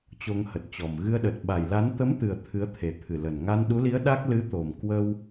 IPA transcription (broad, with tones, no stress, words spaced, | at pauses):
t͡ɕo˧ŋhə˨˩t̚t͡ɕɔ˨˩m ɣɨ˧ə̯ɗə˨˩t̚ ɓa˨˩jla˨˦n t̪ə˨˦m t̪ɨ˨˩ə̯ t̪ʰɨ˨˦ə̯t̪ʰe˨˩t̪ʰɨ˨˩lə˨˩n ŋa˧nɗu˨˦li˨˦ə̯ ɗa˦˥k̚ lɨ˨˦t̪o˨˩m kwə˧w